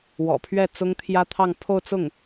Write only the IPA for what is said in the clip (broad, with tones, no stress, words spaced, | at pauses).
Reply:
wɔ̰˨˩pʰɥɛ˥˩ t͡sʊ˥ŋt̪ʰjä˥t̪ʰɑ˥˧ŋ pʰo˥˧ʊ̯t͡sʊ˥˩ŋ